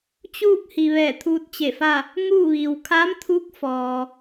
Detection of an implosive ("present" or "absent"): absent